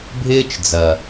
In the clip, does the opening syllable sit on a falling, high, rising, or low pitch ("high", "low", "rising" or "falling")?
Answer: high